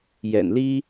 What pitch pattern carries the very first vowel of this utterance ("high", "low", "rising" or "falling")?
low